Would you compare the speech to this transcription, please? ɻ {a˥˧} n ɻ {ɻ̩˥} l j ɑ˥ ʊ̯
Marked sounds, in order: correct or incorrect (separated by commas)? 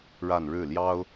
correct, incorrect